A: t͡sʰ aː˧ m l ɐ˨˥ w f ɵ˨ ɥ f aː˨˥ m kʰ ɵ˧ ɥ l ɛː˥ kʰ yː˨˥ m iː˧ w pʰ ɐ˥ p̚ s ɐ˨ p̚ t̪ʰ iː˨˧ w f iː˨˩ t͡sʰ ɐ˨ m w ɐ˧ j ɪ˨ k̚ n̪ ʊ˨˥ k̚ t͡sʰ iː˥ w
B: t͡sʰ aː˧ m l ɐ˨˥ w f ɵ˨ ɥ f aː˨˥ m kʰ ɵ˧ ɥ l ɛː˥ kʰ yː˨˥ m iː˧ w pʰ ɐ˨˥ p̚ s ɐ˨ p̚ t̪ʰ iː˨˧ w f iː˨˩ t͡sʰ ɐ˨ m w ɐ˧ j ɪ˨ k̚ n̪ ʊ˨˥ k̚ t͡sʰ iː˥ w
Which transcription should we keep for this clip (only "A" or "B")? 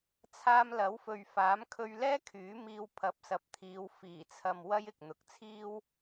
B